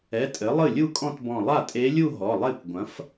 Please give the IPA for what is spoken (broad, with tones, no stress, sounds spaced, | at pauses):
ɛ˩˧˩ tʼ ɘ˩˥ lˠ ɨ˥˩ lʲ u˥˧ kʼ ɔ̃˥˧ t b ɔ̃˧˩ lˠ a˥˩ tʼ e˧˥ lʲ u˥˧ ɦ ɔ˩˧˩ lˠ e˥˩ kʷ ɡʷ ɐ̃˩˥ f